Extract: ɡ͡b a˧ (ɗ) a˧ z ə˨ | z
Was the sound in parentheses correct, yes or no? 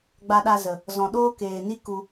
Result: yes